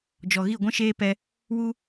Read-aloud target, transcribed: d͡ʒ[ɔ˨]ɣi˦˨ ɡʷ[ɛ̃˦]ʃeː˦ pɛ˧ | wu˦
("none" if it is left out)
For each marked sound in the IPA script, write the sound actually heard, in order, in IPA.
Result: ɔ˨, ɛ̃˦

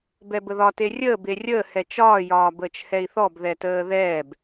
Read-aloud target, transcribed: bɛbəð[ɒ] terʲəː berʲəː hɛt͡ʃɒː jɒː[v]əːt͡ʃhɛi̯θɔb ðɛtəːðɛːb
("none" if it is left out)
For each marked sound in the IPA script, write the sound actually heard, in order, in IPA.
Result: ɒ, b

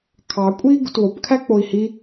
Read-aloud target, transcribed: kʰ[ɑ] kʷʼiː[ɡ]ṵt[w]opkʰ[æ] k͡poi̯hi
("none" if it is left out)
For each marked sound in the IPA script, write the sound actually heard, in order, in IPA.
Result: ɑ, ɡ, w, æ

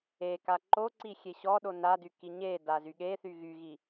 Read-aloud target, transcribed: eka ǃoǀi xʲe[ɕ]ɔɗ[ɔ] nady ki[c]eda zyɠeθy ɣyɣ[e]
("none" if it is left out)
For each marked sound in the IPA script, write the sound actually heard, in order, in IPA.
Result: ɕ, o, ɲ, i

